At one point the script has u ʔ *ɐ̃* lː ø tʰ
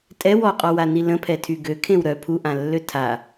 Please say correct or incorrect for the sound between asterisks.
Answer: incorrect